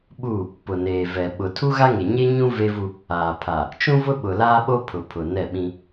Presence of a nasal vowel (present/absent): present